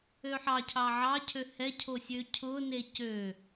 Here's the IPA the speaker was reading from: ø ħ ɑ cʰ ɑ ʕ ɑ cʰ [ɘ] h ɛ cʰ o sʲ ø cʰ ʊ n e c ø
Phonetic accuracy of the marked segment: incorrect: ø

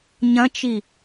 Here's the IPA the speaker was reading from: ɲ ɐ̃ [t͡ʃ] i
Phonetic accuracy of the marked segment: correct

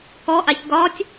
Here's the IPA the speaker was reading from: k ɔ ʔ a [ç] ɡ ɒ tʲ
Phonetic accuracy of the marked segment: correct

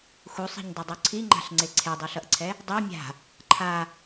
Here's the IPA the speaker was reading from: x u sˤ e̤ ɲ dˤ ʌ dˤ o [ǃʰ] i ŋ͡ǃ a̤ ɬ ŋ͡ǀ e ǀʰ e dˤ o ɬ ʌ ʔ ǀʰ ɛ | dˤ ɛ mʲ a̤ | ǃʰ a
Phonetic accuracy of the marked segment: incorrect: ǀʰ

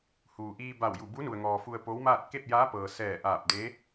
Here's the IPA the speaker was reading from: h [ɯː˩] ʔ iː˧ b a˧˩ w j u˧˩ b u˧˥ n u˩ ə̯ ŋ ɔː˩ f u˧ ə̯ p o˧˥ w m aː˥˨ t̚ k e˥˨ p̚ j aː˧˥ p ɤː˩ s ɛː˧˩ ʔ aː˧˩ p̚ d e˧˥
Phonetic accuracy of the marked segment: incorrect: uː˩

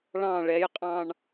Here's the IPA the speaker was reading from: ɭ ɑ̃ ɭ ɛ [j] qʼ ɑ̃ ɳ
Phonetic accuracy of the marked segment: correct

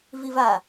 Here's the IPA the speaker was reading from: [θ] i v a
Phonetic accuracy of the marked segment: incorrect: v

